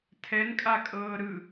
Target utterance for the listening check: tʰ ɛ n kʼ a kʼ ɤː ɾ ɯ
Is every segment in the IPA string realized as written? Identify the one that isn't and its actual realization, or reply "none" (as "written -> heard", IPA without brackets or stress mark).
none